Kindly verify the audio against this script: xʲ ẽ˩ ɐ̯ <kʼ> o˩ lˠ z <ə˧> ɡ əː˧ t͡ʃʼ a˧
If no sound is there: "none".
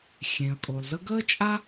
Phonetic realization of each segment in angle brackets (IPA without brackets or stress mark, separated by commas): kʼ, ə˧